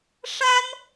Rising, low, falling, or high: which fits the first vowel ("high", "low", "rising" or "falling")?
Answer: high